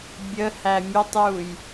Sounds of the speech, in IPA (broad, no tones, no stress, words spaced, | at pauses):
bʲə hæmʲətˤjuj